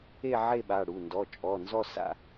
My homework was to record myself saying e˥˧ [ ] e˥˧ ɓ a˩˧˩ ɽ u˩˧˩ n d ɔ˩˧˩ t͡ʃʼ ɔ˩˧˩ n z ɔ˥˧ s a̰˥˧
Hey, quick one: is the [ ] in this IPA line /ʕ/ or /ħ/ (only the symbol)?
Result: ʕ